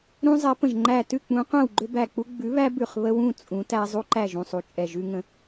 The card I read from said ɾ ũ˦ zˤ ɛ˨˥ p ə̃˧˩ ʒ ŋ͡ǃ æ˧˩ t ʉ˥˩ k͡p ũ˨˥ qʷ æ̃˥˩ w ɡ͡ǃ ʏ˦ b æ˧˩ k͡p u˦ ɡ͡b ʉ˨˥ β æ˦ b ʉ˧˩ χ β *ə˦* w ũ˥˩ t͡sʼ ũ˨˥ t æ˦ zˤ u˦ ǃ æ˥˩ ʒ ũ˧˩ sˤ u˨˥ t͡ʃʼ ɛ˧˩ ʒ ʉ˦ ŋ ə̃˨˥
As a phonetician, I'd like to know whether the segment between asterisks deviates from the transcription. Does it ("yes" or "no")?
no